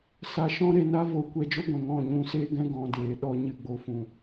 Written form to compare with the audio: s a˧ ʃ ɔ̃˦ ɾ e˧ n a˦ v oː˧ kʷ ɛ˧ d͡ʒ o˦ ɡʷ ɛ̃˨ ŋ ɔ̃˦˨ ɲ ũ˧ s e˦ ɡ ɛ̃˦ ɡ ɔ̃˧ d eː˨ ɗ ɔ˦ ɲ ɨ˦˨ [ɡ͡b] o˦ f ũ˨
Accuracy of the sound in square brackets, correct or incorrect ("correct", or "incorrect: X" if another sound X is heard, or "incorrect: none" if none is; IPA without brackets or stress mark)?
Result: correct